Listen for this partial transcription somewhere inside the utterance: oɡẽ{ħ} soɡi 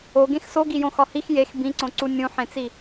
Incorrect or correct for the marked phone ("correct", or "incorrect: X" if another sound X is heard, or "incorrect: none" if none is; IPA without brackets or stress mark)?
incorrect: x